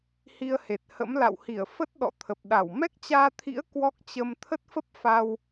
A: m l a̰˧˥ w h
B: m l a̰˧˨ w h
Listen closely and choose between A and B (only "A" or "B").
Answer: B